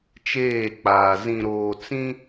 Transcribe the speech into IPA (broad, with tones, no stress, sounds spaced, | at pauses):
t͡ʃ eː˦˨ k͡p aː˨ z ĩ˨ ɾ oː˨ t͡s ĩ˦